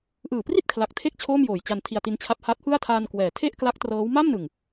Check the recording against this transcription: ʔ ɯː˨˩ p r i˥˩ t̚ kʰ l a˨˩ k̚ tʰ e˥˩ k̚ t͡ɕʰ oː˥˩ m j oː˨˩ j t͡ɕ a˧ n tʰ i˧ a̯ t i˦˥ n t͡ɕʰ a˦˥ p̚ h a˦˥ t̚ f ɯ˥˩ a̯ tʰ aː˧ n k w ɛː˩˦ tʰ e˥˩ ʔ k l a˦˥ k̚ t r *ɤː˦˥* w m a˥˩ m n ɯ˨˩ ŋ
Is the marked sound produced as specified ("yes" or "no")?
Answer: yes